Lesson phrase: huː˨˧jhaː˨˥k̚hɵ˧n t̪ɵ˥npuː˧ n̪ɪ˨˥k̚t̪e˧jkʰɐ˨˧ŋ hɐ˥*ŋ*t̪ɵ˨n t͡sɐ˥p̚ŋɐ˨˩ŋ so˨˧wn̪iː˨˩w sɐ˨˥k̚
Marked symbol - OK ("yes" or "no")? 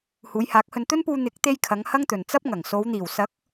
yes